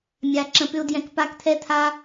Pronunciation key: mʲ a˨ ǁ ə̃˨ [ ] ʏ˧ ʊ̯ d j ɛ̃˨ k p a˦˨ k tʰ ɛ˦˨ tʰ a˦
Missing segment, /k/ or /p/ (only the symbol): p